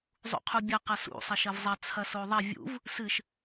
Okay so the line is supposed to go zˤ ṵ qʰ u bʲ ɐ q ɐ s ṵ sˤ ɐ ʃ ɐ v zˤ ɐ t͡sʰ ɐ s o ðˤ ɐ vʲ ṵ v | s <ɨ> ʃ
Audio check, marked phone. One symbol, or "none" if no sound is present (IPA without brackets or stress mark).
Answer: ɨ